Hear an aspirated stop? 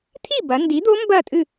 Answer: yes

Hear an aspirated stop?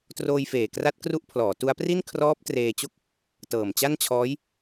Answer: yes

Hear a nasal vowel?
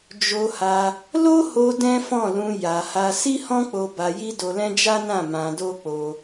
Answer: yes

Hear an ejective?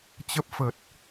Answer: no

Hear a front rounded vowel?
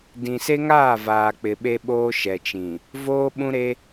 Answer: no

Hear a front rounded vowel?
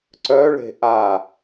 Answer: yes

